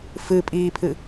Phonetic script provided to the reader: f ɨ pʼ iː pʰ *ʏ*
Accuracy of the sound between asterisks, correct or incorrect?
incorrect: ɨ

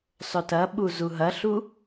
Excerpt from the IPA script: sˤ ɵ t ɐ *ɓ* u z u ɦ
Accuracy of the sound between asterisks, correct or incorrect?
correct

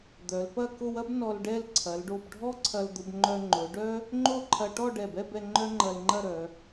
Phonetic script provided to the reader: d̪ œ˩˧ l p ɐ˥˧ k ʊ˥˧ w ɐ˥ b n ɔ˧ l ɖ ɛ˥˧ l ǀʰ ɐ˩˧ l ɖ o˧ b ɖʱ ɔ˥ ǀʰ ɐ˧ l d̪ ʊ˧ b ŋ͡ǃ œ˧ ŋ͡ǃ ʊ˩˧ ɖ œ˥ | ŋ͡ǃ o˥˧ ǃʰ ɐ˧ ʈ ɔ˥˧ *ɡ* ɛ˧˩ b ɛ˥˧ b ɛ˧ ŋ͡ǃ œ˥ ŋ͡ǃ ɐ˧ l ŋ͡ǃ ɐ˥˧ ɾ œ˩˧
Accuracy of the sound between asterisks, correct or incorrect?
incorrect: ɖ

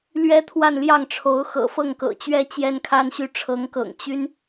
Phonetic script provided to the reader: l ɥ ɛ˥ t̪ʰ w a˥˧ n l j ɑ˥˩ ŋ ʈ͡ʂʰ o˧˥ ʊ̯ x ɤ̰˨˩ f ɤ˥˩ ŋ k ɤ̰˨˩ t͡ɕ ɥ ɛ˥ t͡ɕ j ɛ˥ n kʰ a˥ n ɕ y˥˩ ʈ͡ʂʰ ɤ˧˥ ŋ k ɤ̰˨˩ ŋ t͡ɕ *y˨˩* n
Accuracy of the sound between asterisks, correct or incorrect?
incorrect: y˥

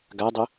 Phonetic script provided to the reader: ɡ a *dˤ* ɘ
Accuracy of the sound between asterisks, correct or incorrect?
correct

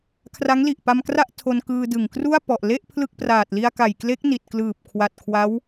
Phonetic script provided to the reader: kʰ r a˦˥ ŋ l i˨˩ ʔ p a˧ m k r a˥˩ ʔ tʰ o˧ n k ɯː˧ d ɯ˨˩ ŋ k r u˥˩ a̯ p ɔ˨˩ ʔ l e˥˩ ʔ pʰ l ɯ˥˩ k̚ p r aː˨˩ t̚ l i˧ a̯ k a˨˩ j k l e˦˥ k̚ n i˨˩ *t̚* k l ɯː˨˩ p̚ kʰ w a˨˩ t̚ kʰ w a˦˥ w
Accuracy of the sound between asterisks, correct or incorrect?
correct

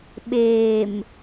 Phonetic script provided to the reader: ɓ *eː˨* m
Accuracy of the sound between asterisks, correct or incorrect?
correct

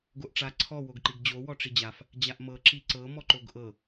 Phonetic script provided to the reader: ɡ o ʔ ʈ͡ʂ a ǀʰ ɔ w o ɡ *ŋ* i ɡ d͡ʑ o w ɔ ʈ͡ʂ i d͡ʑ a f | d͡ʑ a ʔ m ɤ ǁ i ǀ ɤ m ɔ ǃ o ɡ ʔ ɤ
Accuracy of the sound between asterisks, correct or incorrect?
incorrect: ǃ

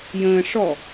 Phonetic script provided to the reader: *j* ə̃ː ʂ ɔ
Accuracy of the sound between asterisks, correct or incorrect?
correct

